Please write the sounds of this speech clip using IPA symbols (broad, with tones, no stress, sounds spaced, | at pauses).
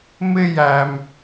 m ɪ˦ j æ˧ m